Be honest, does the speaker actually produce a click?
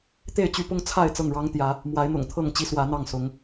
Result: no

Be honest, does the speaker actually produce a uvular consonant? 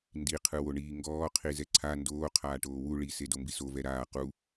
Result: yes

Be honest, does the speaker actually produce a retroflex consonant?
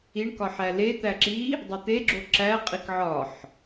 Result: yes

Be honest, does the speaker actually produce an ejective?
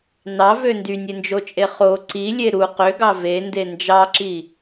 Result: yes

